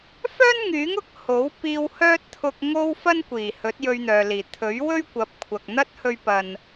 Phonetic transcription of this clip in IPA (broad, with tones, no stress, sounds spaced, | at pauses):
f œː˥ n ŋ yː˨˥ ŋ ʊ˨˥ k̚ h o˨˥ w p iː˧ w h œː˥ t̚ t̪ʰ ʊ˧ k̚ ŋ o˥ w f ɐ˥ n kʷ iː˨˩ h ɵ˨˥ t̚ j ɵ˧ ɥ n̪ œː˨ l iː˨˩ t̪ʰ ɵ˨˥ ɥ w ɵ˥ ɥ kʷ ɐ˨˥ p̚ kʷʰ ɐ˨ k̚ n̪ ɐ˥ t̚ h ɵ˧ ɥ p ɐ˨ n